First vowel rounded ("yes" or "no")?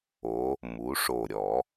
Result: yes